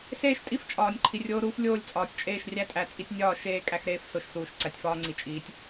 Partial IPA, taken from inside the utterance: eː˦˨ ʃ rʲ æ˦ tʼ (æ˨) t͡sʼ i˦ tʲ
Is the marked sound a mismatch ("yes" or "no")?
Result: no